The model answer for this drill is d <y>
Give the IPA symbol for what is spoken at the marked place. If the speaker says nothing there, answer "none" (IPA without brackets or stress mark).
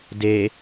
e